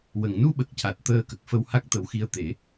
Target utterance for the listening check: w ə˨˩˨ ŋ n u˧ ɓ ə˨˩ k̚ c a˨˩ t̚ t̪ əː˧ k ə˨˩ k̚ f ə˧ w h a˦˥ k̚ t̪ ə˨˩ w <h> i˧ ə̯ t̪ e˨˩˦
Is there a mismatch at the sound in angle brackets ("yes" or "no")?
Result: yes